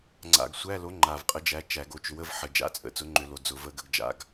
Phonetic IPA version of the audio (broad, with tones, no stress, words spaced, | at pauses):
ŋ͡ǀa̰˨˩ɡ sʷæ˧˥˧lo˨˥ ŋ͡ǃa˨˩vqʼə˨˥d͡ʒæ˨˥ t͡ʃæ˧˩˧ɡo˨˥t͡ʃʏ˨˥wə˧˥˧v ħə˨˩ d͡ʒa̰˧˥˧t͡sʼə̰˨˩ t͡sʊ˨˥ŋ͡ǃʏ˧˩˧lo˨˩ d͡zʊ˧˩˧ və˧˥˧ɡə˨˥ɡ d͡ʒa̰˧˥˧ɡ